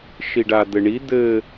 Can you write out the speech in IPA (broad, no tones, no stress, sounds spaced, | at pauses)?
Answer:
ʃ i ɖ a d̪ ɘ ɳ i d̪ ɘ